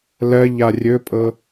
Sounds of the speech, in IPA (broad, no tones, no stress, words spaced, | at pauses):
lɜ ʎarʲɵpʼɤ